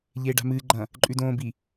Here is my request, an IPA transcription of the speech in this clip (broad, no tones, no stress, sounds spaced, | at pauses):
ʎ eː ɖ a̤ m ɨ ɡ͡ǃ ɐ̃ | ǃʼ ʉ d õː b i